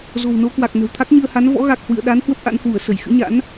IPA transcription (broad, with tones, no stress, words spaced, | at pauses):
zo̤˨˩wno˨˦ kwa˨˩k̚ nə̤˨˩wt̪ʰa˦˥k̚ɲɨ˧ə̯ha˨˦n vɔ̰˧˥ɣa˨˩k̚hwɨ̰˧˨ə̯ ɗa˨˦n hwə˦˥p̚ʔa̰˧˥nhwu˧˩ə̯ sə˧˩jxɨ̰˧˥ɲa̰˧˥n